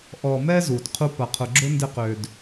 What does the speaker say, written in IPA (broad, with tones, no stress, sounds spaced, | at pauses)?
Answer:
ʔ ɔ˨ m ɛ˦ z u˩ d qʰ u˦ p ɐ˨ qʰ ʊ˨ ɡ͡ǁ ʊ˥ n d ɪ˦ q ø˨ d